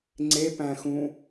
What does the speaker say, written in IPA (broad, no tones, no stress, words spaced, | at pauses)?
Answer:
ŋ͡ǀepæ̃xũ